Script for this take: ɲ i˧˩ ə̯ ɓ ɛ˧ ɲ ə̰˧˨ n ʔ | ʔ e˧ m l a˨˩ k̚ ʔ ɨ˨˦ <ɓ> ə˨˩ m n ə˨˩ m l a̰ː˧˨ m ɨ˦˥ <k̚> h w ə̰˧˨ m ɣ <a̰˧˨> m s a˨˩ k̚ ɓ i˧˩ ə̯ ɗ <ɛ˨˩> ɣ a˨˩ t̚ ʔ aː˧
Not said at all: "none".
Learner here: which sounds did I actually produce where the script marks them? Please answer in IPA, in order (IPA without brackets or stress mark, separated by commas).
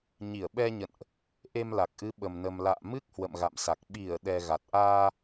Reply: ɓ, k̚, a̰˧˨, ɛ˨˩